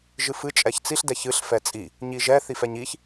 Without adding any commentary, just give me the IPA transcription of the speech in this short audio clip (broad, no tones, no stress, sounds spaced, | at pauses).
ʒ ɨ f ɨ t͡ʃʼ ɛ ç t͡s i ɬ d ɛ ç ɨ ɬ f ɛ t͡sʼ i | ɲ i ʒ ɛ θ i f ɛ ɲ i ç